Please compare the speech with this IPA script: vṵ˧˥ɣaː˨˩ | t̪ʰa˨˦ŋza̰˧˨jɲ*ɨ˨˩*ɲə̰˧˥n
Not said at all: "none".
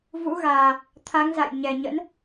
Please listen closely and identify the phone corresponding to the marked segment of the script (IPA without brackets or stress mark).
ɛ˨˩